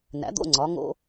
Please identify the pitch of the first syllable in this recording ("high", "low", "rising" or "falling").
rising